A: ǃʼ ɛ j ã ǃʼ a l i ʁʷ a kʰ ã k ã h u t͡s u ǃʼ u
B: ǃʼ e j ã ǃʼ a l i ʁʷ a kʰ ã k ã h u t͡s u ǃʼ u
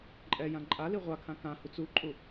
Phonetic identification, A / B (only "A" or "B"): A